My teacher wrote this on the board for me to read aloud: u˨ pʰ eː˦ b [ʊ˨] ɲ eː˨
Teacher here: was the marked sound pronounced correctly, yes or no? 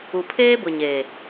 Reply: yes